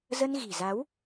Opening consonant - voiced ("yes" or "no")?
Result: yes